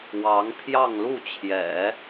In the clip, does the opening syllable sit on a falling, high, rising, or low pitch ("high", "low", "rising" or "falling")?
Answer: rising